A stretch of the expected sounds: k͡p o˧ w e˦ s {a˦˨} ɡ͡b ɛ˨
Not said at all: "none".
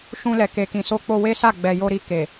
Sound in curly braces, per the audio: a˦˨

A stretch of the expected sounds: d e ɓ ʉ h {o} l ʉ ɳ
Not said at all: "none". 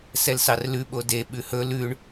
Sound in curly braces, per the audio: ɵ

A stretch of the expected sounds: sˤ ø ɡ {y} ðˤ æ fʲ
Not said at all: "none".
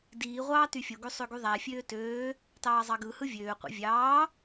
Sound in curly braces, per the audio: y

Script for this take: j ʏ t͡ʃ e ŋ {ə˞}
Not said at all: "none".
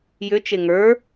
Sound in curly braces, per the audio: ə˞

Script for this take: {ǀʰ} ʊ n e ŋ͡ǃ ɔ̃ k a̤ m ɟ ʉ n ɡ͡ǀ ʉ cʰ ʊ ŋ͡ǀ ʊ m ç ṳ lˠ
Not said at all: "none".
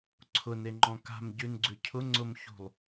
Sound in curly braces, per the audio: ǀʰ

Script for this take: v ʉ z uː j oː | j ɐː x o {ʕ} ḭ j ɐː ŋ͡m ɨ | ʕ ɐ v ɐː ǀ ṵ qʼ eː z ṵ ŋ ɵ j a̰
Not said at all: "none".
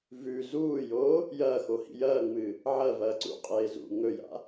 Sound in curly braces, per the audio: h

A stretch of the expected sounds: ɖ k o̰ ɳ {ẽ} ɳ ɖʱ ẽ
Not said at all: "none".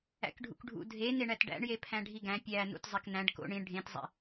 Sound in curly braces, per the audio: ĩ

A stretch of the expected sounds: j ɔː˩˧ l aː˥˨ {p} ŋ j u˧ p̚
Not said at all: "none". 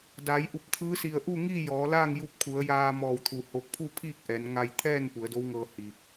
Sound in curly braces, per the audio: none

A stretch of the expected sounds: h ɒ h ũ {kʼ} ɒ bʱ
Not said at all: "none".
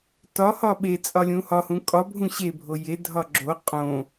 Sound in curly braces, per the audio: kʼ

